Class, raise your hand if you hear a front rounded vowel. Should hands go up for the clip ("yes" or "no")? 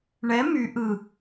yes